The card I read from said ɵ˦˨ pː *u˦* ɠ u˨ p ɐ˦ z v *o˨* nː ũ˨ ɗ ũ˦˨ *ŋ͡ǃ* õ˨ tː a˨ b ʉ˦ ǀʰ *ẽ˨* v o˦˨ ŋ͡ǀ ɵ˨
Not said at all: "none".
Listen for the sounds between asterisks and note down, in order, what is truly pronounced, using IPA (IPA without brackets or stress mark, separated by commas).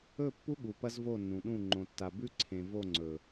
u˦, o˦˨, ŋ͡ǃ, ẽ˨